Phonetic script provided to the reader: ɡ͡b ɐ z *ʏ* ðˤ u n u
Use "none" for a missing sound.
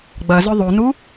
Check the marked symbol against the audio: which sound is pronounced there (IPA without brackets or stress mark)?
ʏ